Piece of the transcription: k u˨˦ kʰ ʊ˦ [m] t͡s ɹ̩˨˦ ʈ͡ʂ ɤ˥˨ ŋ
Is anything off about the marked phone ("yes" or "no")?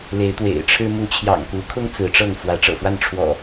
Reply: yes